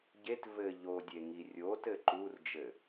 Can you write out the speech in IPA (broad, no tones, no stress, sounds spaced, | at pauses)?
ɟ e t v ɘ ʎ o dʲ e ŋ i rʲ o t ɘ ǃ u r d͡ʒ ɘ